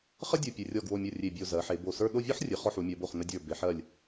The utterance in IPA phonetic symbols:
χə˥dʲu˧˩ pʲɨ˧ rʲɔ˧˩ɡwo˧˩mʲo˧˩ rʲe˧˩bʲo˧˩ zɜ˩˧ħe˩˧ bo˧˩sə˞˥˧ ɗo˥˧vʲɔ˥ħrʲɨ˩˧χɔ˧ ħu˩˧mʲɜ˩˧bo˧˩χ nə˧dʲə˞˧˩ be˩˧ħɜ˧˩lʲ

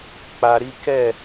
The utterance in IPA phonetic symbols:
k͡pa˧ɾi˦ kɛ˦˨

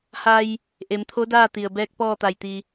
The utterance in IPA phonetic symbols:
ha˧j | ʔe˩˧mt̪ʰo˧˥daː˥˨t̪i˩ə̯ bɛː˧˥k̚pɔː˥˨t̪a˧˩jt̪i˧

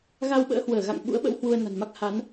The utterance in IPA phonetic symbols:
ɣa˧wɓə̰ː˧˥hwəː˧˩ ɣa̰˧˨ŋɓṵ˧˥ə̯ɓə̰˧˥w hwu˧ə̯na̤˨˩nma˦˥k̚ ha˨˦n

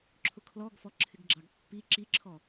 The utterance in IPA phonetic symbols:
ǁʰʊkʰlɔɡfɔ ǁʰɪɡɡ͡ǁɑɡpːi ǁiǁʰɔ

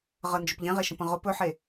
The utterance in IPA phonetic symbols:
ʁənd͡ʒɵp ʎẽʁeʃə̃pə̃ ʁʊp ɵħe

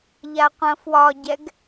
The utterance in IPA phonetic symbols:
ʎaqʷɐ̃fwɒɟɛɡ

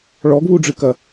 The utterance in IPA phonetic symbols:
ɭɔɡβuɖ͡ʐɨkɐ

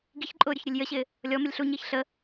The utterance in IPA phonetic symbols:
ɡiçǃʼʊː ɾʲʊçɾʲʊlʲjəɕɪː | lʲɔ məlʲɬuɲɪːç ɬə

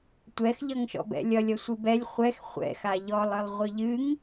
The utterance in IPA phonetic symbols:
tʷɛxʎʌŋʃɔ̰bɛ̰ lʲʌlʲʌ sʷɨbɛlʲ χʷɛx χʷɛ̰xa ʎɔlˠɨlˠ ʁʷɨʎɨŋ

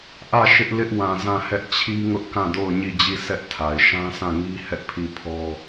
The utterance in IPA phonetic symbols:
ʔä˦˨ ʃɪ˦ʔ lɪ˦ʔwã˨zã˦˨hɛ˦ʔ t͡ɕʰi˦ŋʊ˦ʔ kã˦˨do˦˨ʊ̯ ɲi˦˨d͡ʑi˦˨ sʰɛ˦ʔtʰa˨ɪ̯ ʃã˦sã˦˨ŋi˦ hɛ˦ʔpʰi˦˨pʰɔ˦

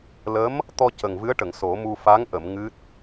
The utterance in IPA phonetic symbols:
lə˧˥m | t̪ɔ˧ cə˨˩ŋvɨ˧˥ə̯ʈə˨˩˨ŋ so˨˩˦mu˧ fa˧˥ŋʔə˨˩˨m ŋɨ˦˥t̚

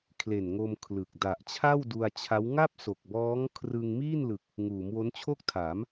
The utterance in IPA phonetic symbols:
kʰle˨˩nŋo˧m kʰlɯ˨˩k̚ da˨˩ʔt͡ɕʰa˥˩wdu˧a̯t͡ɕʰa˦˥w ŋa˥˩p̚so˨˩k̚bɔː˦˥ŋ kʰrɯ˧ŋ miː˥˩nlɯ˨˩k̚ | ŋuː˩˦mwo˦˥nt͡ɕʰo˥˩k̚ tʰa˩˦m

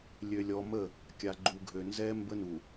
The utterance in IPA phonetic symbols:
lʲø˨lʲɔ˨mə˦˨ | kʲa˨ɡ͡ǃu˨ɡʱø˨ nzɛ˦ mbə˦ nu˨

